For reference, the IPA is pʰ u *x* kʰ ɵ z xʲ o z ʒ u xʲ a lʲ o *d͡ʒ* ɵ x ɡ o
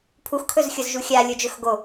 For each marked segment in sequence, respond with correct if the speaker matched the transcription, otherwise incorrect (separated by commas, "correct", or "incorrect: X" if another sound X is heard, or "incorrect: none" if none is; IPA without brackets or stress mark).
correct, correct